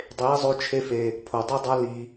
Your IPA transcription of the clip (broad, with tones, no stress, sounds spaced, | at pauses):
dˤ e˨˦ i̯ zˤ o˧ t͡ʃʰ e˧ f e˨ | pʰ o˨ dˤ i˦ dˤ a˦ l i˨